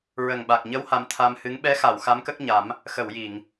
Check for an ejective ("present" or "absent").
absent